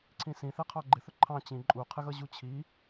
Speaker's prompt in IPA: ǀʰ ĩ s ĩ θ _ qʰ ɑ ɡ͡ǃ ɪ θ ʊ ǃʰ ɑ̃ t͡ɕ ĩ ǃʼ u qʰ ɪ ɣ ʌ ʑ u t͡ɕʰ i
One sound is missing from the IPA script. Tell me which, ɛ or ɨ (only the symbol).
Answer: ɛ